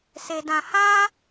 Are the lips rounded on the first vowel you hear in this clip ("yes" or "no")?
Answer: no